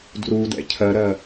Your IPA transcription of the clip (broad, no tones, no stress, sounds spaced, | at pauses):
d r u d ɛ̰ cʰ ɜ ɾ ɜ